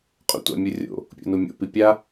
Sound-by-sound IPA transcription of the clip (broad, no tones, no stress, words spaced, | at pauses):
qʼṵtʷa̰mʲurʲo̰ | pʲo̰numʲo̰ pipʲa